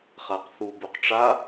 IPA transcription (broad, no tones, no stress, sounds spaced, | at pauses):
χ a q θ u b u q ʈ͡ʂ a